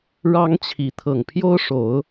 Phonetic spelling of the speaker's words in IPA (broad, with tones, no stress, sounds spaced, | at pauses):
ɻ ɑ˦ ŋ t͡ɕʰ i˨˦ t̪ʰ ɤ˨˩ ŋ pʰ j o˦ ʊ̯ ʂ o˨˦ ʊ̯